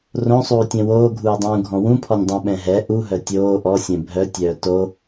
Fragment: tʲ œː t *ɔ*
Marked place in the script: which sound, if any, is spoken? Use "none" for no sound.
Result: o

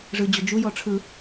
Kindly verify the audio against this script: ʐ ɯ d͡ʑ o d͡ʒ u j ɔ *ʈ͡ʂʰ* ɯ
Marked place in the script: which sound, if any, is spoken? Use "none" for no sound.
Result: ʈ͡ʂʰ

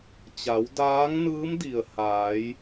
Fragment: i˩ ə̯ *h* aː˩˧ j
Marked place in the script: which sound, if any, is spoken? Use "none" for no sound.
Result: h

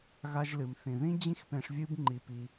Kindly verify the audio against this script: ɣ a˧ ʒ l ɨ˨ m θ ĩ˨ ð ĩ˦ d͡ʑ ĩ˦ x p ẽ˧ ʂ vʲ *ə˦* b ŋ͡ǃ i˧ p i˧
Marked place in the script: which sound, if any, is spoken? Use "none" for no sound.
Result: ɨ˦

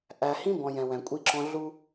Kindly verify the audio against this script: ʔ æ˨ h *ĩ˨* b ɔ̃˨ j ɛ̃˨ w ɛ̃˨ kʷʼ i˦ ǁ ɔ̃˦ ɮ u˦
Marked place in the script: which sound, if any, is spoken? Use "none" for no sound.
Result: ĩ˦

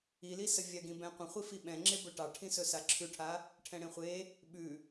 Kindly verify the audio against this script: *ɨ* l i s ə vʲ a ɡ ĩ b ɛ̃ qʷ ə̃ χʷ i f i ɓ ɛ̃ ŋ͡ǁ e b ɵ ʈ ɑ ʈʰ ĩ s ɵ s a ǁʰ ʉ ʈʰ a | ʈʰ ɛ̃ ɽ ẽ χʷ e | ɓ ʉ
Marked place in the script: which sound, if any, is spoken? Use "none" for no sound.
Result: i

